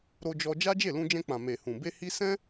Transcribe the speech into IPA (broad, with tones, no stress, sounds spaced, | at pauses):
ɾ o˧ d͡ʒ ɔ˧ d͡ʒ a˦ d͡ʒ e˦˨ l ũ˧ d͡ʒ ɛ̃˧ k͡p ã˨ m e˨ h ũ˨ b e˧ h i˧ s ɛ̃˦